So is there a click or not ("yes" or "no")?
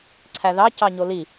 yes